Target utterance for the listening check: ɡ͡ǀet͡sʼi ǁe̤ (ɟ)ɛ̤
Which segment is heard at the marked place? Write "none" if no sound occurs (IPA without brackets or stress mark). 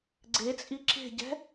ɟ